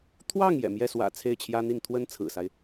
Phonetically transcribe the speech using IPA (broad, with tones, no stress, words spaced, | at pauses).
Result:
t̪ʰwɑ˥˩ŋ jɛ̰˨˩ mjɛ˥˩swä̰˨˩ t͡sʰe˥˩ɪ̯t͡ɕʰjä˥n̪i˥˩n t̪ʰwə˥n t͡sʰɹ̩˨˩sa˦ɪ̯